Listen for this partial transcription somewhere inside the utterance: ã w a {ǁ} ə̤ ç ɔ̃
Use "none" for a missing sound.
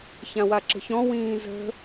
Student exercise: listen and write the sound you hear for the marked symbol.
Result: ǁ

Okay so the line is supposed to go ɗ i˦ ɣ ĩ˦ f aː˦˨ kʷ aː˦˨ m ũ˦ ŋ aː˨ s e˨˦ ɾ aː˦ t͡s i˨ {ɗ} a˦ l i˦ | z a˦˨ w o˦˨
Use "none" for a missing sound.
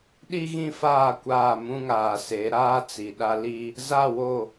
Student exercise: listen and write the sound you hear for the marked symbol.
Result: ɗ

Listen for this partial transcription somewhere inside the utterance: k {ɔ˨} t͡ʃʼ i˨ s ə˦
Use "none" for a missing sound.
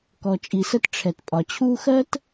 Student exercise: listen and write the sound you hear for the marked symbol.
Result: ɔ˨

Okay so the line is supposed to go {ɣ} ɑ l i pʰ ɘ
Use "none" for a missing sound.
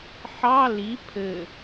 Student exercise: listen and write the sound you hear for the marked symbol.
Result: ħ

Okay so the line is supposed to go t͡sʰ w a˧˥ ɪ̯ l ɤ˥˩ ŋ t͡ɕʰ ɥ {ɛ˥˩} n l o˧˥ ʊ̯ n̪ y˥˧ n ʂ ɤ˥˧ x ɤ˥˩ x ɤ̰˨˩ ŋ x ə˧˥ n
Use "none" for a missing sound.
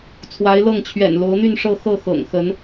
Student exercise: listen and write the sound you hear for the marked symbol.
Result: ɛ̰˨˩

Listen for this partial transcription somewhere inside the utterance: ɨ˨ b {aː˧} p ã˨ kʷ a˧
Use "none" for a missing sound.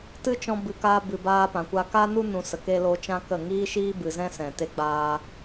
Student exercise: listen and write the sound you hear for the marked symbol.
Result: aː˧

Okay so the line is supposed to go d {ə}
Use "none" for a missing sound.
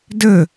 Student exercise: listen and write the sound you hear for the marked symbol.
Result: ə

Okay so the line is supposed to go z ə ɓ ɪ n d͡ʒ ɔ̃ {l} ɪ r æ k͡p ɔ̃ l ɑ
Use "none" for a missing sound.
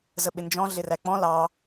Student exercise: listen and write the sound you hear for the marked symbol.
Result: ɮ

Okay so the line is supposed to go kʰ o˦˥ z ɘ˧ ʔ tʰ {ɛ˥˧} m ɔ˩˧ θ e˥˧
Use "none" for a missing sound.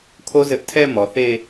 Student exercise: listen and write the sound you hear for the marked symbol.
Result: ɛ˥˧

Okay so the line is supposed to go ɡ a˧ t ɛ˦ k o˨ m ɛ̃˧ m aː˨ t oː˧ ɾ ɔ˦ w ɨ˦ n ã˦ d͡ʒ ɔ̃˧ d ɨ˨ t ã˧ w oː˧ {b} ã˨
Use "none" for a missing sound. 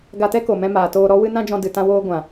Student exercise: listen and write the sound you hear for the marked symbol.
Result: ɡʷ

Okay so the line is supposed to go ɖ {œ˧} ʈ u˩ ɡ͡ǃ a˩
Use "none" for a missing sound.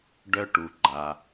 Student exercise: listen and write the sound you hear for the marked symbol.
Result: œ˧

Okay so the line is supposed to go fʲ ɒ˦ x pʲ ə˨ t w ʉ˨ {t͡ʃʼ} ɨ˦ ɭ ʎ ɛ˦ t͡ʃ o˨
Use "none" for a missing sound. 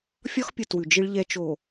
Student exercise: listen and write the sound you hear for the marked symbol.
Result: d͡ʒ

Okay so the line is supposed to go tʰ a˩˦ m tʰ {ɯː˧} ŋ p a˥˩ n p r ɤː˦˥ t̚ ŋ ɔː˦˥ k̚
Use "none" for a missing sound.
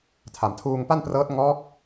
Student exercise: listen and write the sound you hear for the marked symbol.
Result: uː˧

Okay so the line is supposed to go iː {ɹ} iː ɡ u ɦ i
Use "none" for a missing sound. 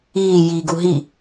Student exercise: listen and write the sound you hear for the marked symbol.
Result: j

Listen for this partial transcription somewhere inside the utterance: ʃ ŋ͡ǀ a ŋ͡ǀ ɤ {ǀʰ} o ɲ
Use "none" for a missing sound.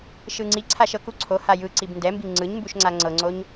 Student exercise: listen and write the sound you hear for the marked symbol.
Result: ŋ͡ǀ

